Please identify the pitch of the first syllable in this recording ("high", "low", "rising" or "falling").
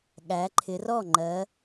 rising